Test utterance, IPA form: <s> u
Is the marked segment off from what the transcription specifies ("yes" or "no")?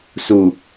no